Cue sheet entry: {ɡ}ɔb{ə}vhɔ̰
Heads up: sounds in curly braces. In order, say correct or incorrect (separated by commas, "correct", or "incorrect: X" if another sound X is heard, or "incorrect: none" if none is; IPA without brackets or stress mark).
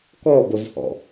incorrect: k, correct